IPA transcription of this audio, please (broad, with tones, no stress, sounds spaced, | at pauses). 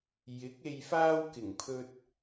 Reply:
j ɪ˨˥ k̚ e˨ j f aː˧ w k ɪ˨˩ ŋ pʰ ɵ˧ t̚